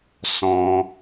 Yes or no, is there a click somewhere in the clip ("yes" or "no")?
no